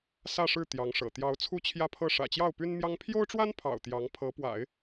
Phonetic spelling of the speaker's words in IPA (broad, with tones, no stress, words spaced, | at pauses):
sä˥˧ʂɻ̩˥˩ t̪jɑ˧˥ŋʂɤ̰˨˩ t̪jɑ˧˥ʊ̯ t͡sʰu˥t͡ɕʰjä˥pʰɤ˥˩ ʂä̰˨˩t͡ɕjɑ˥˩ʊ̯ py˥nmjɑ˥ŋ pʰjo˥ʊ̯ʈ͡ʂwa˥npʰɑ̰˨˩ʊ̯ t̪jɑ˧˥ŋpʰɤ˧˥pwa̰˨˩˦ɪ̯